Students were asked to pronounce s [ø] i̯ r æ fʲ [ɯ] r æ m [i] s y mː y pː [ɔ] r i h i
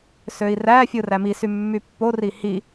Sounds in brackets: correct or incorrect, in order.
correct, correct, correct, incorrect: o

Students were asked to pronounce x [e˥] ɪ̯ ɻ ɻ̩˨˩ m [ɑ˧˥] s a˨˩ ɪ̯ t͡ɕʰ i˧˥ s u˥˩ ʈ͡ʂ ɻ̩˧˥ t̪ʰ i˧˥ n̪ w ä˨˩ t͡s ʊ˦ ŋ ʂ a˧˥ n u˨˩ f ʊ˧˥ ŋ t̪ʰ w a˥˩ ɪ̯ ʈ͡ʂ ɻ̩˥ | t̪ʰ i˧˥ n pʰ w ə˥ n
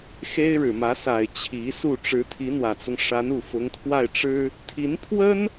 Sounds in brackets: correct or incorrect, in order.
correct, incorrect: ä˧˥

